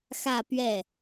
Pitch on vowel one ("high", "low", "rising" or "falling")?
falling